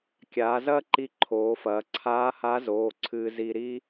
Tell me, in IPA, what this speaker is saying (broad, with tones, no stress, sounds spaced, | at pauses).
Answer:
kʲ aː˩˧ z ɐː˥ ǃ i˧ ǃʰ oː˩˧ f ɐː˩˧ ǀʰ aː˧˥ h a˧˥ z oː˩˧˩ ǀʰ ɨː˧ z i˧ ɾ i˥